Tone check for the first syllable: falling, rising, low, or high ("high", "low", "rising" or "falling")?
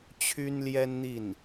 high